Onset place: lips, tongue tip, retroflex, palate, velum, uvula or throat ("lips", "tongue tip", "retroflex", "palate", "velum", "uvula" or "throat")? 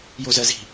palate